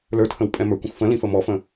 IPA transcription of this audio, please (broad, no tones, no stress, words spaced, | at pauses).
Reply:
lə˞tʰə̃w pʼɛ̃mə˞kʷə̃xʷ fə̃ lĩfəmɔfə̃